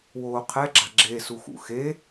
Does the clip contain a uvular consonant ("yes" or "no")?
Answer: yes